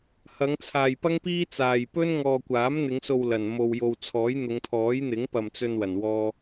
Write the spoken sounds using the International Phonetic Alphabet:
h ɐ˨˧ ŋ t͡sʰ aː˨ j p ɐ˥ ŋ p iː˥ t͡s aː˨ j p ɵ˥ n ŋ ɔː˨ kʷ aː˨˥ m n̪ ɪ˨˧ ŋ s o˨ w l ɐ˨˩ n m o˨ w j o˨ w t͡sʰ ɔː˨˥ j n̪ ʊ˨˧ ŋ t̪ʰ ɔː˨˥ j n̪ ɪ˨˥ ŋ p ɐ˨ m t͡s ɵ˧ n w ɐ˨˩ n w ɔː˧

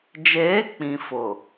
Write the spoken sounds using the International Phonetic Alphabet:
d͡ʒ eː˨˦ k͡p ĩ˨ f ʊ˨

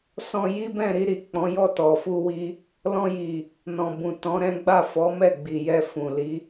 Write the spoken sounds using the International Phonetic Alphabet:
s ɔ̃˧ j i˦ b ɛ̃˦˨ ɾ i˧ ɾ i˨ k͡p ɔ̃˨˦ j ɔ˦˨ t ɔ˨ f u˧ w i˦ | l ɔ̃˧ j i˨ | n ɔ̃˨ b ũ˨ t ɔ̃˨˦ ɾ ɛ̃˦ ɡ͡b a˦˨ f ɔ˨˦ m ɛ˦˨ ɡ͡b i˨ j ɛ˧ f ũ˨ l i˨˦

